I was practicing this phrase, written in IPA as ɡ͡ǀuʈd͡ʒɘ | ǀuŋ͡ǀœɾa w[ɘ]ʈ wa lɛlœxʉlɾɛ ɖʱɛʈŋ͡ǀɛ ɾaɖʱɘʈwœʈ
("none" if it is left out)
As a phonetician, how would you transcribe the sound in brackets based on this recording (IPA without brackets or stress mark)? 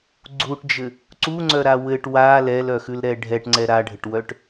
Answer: ɘ